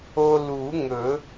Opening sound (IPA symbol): o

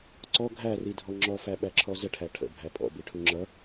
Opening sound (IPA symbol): ǀ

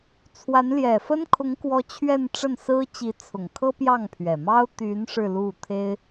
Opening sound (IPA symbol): t͡sʰ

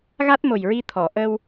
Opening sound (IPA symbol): ɣ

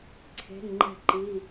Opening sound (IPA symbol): ǀʰ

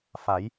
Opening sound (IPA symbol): f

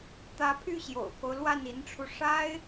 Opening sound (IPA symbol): t̪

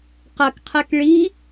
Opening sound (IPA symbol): q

